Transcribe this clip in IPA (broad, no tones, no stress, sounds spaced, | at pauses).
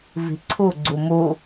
v i̤ ǀʰ u ɡ͡ǀ u m u